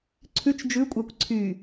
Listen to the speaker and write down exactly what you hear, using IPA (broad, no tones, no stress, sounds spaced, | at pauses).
ǀʰ ʉ t͡ʃ d͡ʒ ʉ kʷʼ æ kʷ ǀʰ y